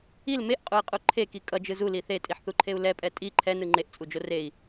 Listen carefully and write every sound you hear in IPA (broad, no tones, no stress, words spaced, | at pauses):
il meʔqʼui̯qʼu ǃʰeki kʼʌd͡ʒɯ zuli θetʼiħθuǃʰeu̯ lɛpʼɛ tʼi ǃʰɛnɯ ŋ͡ǃeʔt͡sʼud͡ʒo rei̯